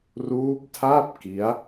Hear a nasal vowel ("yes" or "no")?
no